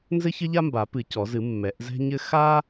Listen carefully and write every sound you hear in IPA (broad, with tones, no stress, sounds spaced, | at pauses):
n z ɘ˥ ç ɘ˥ ʎ a˥ m b a˨˩˦ p ɨ˨˩˦ c ɔ˨˩˦ z ɨ˨˩˦ mː ɛ˨˩˦ ʔ z ɛ̤˥ ɲ ɘ˥ x a˥